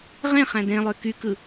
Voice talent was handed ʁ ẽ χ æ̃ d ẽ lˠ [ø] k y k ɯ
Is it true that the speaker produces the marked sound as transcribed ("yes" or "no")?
yes